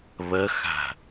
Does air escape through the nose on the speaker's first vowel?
no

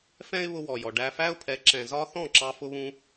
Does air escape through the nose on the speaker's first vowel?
yes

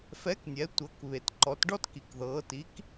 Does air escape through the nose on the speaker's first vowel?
no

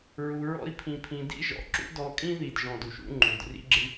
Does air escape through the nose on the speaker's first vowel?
no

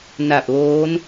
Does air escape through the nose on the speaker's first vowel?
no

